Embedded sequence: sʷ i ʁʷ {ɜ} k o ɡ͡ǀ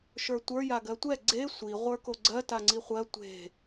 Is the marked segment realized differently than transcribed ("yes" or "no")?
yes